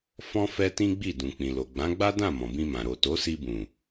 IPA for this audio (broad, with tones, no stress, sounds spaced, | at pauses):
f ɔ̃˦ f ɛ˦ t ĩ˦ ɡ͡b i˦˨ d ũ˨ k͡p ĩ˨ l o˨ ɡ͡b ã˨˦ ɡ͡b a˦ d ã˦˨ m ɔ̃˨ b ĩ˧ m ã˨ ɾ o˨ t o˨˦ s i˧ b ũ˨